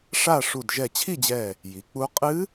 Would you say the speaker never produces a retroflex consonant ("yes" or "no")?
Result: no